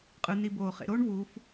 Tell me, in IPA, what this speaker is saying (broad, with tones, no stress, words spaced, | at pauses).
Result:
qʼɯ˩˧ni˩˧ boː˩χḛ˩˧ɾoː˥ɳvuː˩˧f